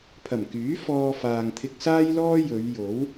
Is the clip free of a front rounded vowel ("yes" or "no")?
no